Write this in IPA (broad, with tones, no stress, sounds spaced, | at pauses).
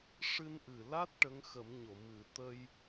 ʂ ɨ˧ n ʔ ɨ˨˩ l a˦˥ t̚ ʈ ə˧˥ ŋ x ə˨˩˦ m ɲ o˨˩˨ m ɨ˨˩ t̪ ə˧ j